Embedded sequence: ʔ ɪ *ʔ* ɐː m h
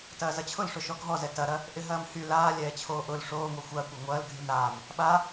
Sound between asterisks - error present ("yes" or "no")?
yes